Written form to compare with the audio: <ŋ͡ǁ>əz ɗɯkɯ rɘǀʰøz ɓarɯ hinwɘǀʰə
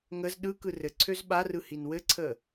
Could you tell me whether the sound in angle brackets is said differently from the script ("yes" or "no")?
yes